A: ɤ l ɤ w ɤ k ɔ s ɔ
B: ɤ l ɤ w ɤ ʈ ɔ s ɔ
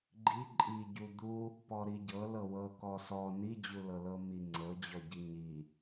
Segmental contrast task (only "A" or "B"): A